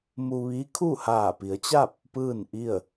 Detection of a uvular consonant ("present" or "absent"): absent